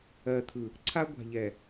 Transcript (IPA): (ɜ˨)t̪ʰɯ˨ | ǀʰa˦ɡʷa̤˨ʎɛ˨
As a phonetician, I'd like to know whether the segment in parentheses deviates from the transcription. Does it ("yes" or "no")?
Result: no